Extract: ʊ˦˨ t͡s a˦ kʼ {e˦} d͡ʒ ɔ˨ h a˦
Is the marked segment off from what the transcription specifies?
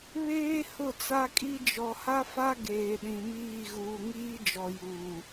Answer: yes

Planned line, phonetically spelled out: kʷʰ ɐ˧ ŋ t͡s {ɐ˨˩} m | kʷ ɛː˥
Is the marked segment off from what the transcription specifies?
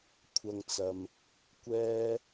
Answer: yes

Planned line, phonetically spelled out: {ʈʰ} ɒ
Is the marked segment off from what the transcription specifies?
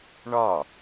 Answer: yes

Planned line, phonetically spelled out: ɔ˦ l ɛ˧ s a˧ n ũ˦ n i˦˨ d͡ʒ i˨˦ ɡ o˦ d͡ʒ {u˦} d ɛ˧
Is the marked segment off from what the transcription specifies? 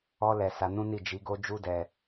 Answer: no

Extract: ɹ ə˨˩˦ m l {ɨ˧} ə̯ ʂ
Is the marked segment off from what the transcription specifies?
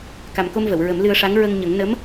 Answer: no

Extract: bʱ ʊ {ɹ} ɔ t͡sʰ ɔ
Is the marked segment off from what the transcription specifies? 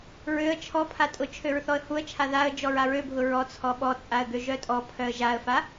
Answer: no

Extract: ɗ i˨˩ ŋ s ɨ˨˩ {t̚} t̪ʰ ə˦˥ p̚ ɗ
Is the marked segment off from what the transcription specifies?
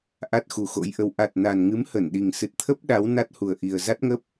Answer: no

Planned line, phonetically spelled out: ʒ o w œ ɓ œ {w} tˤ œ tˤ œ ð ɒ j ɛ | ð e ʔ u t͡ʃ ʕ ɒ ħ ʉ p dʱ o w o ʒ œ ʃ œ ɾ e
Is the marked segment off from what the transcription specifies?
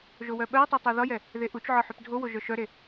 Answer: no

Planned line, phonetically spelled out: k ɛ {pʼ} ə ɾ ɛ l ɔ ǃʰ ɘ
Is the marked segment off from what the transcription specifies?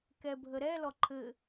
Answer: yes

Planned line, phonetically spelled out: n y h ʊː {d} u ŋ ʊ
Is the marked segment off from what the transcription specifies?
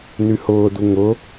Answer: no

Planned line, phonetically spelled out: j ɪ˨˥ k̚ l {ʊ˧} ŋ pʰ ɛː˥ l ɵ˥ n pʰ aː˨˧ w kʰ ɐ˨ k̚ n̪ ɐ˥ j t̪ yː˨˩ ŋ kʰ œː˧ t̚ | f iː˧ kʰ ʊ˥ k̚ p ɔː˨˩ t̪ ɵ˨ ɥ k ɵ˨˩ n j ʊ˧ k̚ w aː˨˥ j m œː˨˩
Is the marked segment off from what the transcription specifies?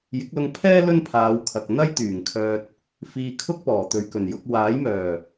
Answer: no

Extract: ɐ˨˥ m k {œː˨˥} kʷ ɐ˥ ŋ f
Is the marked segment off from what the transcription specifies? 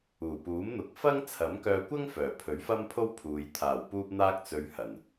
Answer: yes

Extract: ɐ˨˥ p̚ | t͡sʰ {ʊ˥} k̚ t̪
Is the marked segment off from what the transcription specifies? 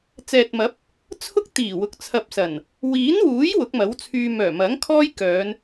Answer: no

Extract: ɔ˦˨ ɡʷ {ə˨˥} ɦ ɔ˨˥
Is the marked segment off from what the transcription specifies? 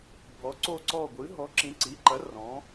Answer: yes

